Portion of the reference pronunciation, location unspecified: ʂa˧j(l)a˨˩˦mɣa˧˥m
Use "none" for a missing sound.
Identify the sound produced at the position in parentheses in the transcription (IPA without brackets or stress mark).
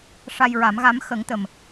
ɹ